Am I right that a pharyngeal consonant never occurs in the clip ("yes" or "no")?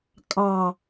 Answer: yes